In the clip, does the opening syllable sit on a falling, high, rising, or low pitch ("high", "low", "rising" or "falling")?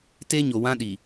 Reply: high